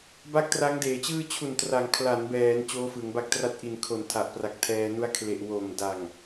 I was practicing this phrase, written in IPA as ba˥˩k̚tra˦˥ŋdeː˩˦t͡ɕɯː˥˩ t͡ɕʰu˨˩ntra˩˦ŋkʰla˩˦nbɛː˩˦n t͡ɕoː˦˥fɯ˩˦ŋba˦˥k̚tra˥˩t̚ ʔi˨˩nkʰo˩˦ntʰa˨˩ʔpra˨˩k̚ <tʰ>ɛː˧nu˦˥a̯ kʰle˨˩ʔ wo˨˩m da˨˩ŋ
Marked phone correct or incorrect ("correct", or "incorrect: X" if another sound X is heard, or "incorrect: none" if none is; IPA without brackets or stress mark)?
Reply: correct